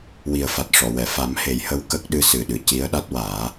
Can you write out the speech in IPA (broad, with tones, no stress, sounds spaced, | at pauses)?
w i˨˩ ə̯ f a˨˩ t̚ ʂ ɔ˨˩˨ w ɛ˨˩˨ f a˨˩˦ m h e˨˩˦ j h ə˧˥ w k ə˦˥ k̚ ɗ ɨ˧˥ s ɨ˨˩ ɗ ɨ˨˩˨ c i˧˥ ə̯ ɗ a˦˥ t̚ w aː˨˩˦